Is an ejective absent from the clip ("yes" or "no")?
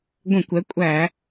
no